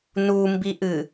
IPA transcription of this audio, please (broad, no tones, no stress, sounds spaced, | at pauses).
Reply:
n u m b i ʔ ɨ